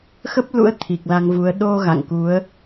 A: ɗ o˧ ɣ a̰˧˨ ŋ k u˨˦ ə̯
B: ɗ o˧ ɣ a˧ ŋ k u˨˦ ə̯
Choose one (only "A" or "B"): A